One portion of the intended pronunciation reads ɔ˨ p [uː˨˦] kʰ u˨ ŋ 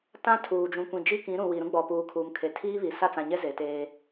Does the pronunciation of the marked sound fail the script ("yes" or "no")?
yes